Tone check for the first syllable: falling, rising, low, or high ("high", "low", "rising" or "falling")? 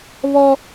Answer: high